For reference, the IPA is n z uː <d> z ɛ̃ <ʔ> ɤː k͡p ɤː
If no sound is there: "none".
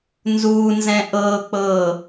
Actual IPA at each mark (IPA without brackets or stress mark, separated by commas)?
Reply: n, ʔ